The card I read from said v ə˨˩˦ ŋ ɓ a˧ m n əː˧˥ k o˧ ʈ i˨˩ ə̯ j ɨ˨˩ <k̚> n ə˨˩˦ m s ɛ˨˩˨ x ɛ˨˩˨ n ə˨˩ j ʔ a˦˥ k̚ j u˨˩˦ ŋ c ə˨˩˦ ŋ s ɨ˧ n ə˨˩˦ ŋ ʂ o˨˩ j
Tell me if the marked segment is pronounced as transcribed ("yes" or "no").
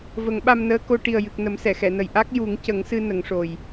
yes